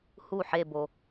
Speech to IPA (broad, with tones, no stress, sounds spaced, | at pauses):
h u˥˩ ħ e˥˧ b o˧